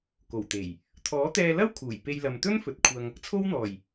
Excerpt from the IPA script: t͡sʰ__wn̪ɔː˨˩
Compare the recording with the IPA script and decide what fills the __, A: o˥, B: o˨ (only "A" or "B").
A